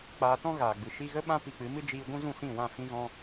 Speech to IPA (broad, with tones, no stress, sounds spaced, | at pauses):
k͡p aː˧ t ɔ̃˦ ɣ aː˨ ɡ͡b ɨ˨ ʃ i˧ ɣ ə˦ ɓ ã˦ p i˧ k͡p ɨ˨˦ m ɨ˦ d͡ʒ iː˧ ɡʷ ũ˦ z ũ˦˨ s ĩ˦˨ w ã˦˨ f ĩ˧ ɣ ɔ̃˧